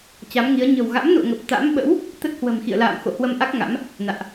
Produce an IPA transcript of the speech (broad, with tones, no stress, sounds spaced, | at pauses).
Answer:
t͡ɕ a˨˦ m ŋ i˨˦ ə̯ ɲ ə̤˨˩ w ɣ a̰˧˥ m n ṵ˧˨ ə̯ ŋ ə˨˩ p̚ t̪ a̰˧˥ m ɓ ə̰˧˥ w | t̪ ə˦˥ t̚ h w ə̤˨˩ m x ḭ˧˨ ə̯ l a̰ː˧˨ m x o̰˧˨ h w ə˧ m ʔ a˦˥ k̚ ŋ a̰˧˥ m | n a̰ː˧˨ ʔ